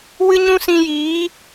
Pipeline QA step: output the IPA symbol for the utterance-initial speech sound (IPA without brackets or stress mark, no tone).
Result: w